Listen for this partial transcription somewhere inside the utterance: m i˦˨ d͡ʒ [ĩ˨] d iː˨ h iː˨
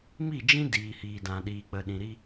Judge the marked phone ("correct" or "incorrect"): incorrect